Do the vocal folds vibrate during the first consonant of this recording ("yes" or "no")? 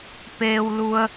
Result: no